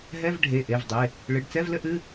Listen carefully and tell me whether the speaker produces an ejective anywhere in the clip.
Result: no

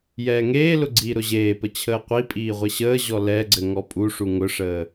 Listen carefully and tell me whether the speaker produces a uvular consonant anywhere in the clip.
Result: yes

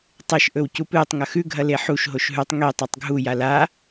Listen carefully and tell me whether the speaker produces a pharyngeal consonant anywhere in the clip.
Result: yes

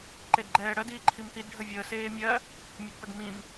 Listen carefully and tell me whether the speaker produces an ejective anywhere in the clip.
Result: no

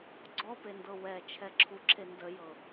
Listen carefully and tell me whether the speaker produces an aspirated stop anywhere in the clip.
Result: yes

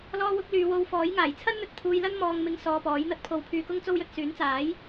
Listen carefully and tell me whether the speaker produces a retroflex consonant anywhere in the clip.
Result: no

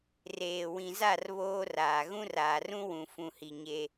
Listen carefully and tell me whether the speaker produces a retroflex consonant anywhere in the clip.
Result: no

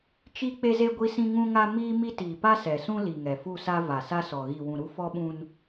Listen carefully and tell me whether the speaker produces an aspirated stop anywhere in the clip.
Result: no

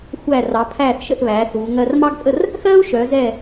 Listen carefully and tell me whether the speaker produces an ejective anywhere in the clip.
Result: yes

